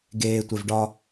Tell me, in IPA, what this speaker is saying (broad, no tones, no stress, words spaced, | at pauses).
ɡeːtʷev ɖɒ